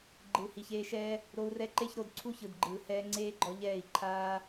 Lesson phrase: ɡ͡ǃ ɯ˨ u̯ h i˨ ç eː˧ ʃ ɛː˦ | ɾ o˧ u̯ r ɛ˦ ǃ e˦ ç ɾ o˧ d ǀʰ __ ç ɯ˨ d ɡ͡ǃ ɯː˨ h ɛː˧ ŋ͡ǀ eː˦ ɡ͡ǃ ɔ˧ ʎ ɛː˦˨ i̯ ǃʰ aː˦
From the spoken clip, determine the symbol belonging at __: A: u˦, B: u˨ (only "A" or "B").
A